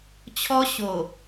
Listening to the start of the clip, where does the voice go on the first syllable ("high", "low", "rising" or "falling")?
high